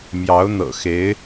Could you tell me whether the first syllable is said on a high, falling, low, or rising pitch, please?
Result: rising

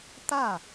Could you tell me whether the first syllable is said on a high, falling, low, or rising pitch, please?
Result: falling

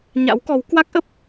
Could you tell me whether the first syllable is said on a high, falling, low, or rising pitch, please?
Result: rising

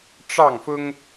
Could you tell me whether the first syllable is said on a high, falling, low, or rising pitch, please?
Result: falling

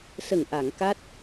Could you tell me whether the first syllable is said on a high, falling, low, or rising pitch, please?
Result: low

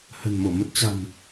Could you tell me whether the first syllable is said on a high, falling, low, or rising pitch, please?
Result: low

